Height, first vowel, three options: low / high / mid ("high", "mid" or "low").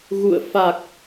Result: high